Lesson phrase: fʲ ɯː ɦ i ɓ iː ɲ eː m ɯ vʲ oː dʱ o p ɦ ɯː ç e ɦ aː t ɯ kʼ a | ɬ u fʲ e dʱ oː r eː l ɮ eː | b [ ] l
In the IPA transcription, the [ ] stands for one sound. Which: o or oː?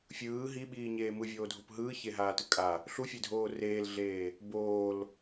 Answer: oː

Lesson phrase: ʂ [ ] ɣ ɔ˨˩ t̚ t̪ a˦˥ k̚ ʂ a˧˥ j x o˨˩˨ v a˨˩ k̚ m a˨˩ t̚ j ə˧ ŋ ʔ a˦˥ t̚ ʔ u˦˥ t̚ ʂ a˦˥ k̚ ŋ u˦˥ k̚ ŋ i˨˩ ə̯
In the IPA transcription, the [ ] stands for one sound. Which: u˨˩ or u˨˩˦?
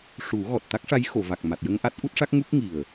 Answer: u˨˩˦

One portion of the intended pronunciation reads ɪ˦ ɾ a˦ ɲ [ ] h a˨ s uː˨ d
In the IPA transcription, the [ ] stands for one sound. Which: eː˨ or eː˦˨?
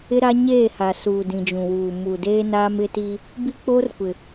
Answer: eː˦˨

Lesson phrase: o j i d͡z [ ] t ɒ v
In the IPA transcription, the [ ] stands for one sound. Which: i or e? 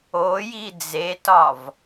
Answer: e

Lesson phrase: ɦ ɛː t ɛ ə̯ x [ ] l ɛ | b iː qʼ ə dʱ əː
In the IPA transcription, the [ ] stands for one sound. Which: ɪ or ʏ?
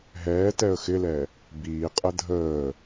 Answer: ɪ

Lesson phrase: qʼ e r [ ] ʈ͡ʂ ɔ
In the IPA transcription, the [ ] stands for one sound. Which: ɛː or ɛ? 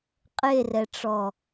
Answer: ɛ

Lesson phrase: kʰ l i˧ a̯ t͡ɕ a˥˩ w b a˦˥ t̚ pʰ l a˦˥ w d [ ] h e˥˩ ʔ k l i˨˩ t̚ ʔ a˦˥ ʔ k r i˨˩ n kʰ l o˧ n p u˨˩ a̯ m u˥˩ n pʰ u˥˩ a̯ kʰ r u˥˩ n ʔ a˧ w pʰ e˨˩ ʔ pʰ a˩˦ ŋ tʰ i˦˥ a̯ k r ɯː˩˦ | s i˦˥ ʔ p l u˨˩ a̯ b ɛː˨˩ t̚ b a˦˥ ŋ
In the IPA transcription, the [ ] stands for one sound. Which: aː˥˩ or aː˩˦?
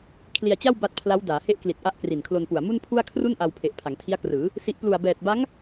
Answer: aː˩˦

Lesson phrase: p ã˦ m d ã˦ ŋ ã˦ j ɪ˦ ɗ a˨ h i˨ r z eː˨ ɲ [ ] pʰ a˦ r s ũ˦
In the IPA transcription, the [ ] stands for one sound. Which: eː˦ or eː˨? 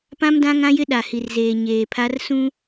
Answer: eː˨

